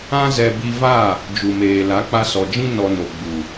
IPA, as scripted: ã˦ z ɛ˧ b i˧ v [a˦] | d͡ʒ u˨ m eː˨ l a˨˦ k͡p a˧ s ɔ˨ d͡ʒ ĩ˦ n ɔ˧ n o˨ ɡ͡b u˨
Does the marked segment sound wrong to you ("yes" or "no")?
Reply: yes